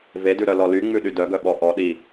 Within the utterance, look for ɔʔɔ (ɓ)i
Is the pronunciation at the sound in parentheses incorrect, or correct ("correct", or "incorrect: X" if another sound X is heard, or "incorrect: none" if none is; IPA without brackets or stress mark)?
incorrect: ɗ